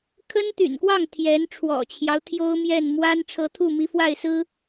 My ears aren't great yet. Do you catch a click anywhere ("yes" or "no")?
no